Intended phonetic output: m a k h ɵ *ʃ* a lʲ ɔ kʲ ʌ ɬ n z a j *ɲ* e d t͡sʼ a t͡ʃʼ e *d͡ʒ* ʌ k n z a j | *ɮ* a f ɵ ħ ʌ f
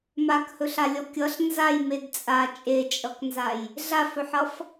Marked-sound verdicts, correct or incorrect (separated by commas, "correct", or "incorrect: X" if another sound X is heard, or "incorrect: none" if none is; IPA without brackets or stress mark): incorrect: ɬ, incorrect: m, incorrect: t͡ʃʼ, correct